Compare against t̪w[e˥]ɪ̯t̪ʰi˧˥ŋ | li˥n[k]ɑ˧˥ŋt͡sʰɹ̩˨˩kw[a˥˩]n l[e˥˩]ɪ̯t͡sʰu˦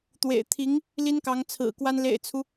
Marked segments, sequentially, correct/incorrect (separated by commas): incorrect, correct, incorrect, incorrect